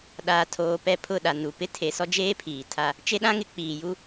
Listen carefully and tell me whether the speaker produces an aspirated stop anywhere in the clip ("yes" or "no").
yes